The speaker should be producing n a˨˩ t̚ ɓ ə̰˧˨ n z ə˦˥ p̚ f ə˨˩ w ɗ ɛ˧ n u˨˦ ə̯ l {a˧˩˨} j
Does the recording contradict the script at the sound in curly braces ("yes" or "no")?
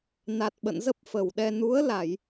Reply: no